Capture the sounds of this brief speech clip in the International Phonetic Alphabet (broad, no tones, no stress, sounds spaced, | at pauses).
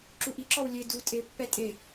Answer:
ǁ u ʔ i ǁ ɔ w lʲ e d u tʼ e pː ɛ tʼ e